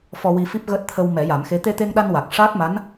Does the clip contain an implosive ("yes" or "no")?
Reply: yes